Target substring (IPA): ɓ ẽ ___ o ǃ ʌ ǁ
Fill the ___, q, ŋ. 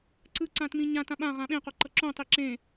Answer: q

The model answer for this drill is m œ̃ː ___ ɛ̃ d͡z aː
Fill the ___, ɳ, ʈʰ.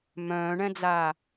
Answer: ɳ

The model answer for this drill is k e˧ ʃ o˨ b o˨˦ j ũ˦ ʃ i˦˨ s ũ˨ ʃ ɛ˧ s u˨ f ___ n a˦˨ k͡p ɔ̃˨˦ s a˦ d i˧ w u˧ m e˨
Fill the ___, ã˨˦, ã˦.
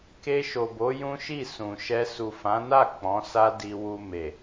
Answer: ã˨˦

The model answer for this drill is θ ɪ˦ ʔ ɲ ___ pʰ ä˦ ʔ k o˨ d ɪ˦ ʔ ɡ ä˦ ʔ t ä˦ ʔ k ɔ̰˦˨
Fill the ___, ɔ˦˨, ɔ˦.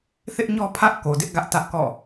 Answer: ɔ˦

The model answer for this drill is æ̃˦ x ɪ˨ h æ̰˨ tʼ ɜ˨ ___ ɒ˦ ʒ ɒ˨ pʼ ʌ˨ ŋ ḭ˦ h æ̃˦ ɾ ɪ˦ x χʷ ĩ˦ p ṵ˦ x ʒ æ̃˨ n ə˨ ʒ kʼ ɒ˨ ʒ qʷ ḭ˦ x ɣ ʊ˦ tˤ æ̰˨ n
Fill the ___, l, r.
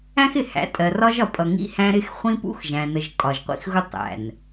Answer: r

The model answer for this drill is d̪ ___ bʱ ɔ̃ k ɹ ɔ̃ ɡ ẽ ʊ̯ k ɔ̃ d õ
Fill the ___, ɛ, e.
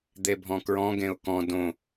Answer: e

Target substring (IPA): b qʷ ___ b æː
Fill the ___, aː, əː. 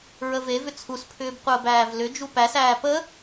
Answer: əː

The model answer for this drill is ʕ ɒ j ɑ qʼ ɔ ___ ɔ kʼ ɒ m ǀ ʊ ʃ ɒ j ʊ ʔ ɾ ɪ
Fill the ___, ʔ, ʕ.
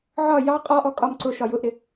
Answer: ʔ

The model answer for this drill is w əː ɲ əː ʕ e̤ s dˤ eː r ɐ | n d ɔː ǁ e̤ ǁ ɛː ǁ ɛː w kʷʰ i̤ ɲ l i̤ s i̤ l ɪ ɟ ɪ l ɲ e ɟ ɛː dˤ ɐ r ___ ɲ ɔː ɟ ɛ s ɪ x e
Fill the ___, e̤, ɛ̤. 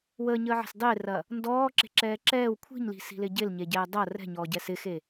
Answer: ɛ̤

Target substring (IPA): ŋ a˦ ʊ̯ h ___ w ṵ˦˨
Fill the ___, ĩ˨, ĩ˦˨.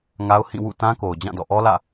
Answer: ĩ˦˨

